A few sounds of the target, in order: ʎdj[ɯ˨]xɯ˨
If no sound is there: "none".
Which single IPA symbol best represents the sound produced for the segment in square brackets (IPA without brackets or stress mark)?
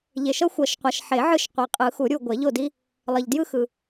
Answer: ɯ˦